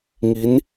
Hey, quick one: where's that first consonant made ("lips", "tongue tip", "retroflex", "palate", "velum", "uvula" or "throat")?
velum